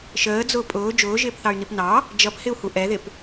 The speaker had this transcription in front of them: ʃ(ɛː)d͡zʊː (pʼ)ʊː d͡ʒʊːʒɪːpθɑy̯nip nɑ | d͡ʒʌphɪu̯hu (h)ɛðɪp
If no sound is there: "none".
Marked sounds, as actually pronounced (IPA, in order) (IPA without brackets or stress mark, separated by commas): əː, pʼ, ʔ